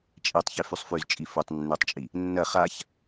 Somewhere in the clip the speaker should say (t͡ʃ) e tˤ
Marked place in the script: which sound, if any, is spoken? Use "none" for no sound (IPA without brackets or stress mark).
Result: t͡ʃʼ